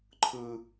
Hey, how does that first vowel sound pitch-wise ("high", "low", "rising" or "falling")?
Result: high